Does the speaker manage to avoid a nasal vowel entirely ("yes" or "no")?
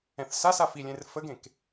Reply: no